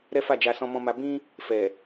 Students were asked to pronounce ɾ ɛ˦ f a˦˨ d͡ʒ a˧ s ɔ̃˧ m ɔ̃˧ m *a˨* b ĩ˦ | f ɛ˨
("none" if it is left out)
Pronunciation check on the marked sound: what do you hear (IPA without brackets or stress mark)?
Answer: a˧